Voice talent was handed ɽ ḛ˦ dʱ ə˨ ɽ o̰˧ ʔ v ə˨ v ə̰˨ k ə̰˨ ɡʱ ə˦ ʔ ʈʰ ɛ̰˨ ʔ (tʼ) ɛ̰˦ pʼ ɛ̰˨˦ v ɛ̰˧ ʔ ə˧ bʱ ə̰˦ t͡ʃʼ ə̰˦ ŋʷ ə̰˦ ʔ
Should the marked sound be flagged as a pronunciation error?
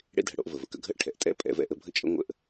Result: no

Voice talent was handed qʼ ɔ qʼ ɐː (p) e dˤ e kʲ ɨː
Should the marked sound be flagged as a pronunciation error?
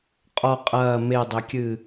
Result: yes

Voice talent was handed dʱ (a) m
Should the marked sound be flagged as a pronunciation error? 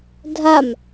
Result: no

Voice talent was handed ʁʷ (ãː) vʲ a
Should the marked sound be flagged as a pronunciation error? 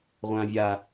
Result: no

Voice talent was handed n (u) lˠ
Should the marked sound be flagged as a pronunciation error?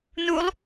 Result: no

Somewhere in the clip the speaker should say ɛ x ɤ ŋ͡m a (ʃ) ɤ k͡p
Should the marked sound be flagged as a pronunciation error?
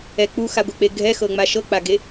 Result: no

